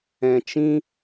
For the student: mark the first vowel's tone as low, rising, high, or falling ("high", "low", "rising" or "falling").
low